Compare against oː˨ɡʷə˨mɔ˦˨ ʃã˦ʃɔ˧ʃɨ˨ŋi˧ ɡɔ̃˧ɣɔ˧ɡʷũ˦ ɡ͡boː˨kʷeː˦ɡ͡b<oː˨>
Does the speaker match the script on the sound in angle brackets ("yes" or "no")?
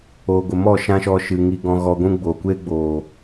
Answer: yes